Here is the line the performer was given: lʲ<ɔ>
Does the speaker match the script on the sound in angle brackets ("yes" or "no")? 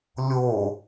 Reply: no